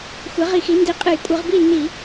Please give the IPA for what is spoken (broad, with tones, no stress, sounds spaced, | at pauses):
xʷ ɛ˩˥ ʁ i˧˩˧ x i˩˥ n d i˩˥ qʼ ɨ˧˩˧ j kʷʼ ɨ˧˩˧ ʁ b i˥˨ nː i˧˩˧